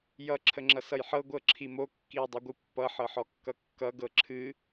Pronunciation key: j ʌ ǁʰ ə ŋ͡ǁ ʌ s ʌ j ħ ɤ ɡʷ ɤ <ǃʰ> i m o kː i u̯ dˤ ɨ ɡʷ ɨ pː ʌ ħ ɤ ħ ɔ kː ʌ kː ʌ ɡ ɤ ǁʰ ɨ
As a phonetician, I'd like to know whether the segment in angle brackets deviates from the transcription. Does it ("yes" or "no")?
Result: yes